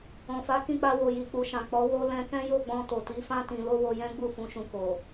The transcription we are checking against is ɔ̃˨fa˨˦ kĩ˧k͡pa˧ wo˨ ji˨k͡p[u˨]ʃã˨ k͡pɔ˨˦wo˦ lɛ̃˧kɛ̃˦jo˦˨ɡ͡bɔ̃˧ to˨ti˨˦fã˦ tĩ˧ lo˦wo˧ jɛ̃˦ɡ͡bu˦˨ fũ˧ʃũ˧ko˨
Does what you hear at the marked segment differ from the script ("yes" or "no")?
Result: no